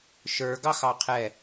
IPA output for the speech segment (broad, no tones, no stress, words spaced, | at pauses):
ʃə˞ ɡɑxɑqʰɛ